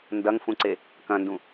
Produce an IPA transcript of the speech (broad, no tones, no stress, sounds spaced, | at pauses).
n d ɐ ŋ f ũ ǀ e | k ɐ̃ n d ũ